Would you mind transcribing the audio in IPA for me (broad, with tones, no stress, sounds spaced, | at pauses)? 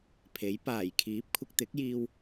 pʰ e˨˥ j p aː˨˩ j kʰ iː˨˥ p̚ kʷʰ ɪ˧ k̚ t̪ ɪ˨˥ k̚ j iː˧ w